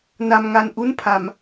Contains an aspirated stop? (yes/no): yes